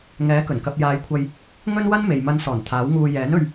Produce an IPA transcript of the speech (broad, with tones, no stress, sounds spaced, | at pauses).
ŋ ɛː˨˥ k ɵ˨˩ n k ɐ˧ p̚ j aː˨˧ j kʷʰ ɐ˧ j | ŋ ɵ˥ n w ɐ˥ n m e˨ j m ɐ˧ n s ɔː˨˩ n t̪ʰ aː˨˥ w ŋ uː˧ j ɛː˨˥ n ɵ˧ ɥ